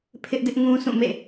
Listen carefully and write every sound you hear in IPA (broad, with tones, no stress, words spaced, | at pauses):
pʰɪ˦ʔdɪ˦ʔ ŋũ˦sʰũ˦˨mḛ˦˨